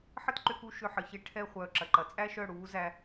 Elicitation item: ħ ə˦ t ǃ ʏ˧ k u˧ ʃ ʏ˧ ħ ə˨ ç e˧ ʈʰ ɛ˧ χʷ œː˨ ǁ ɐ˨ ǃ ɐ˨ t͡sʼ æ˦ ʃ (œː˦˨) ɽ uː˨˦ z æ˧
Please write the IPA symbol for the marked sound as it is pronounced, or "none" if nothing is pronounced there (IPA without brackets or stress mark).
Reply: œ˦˨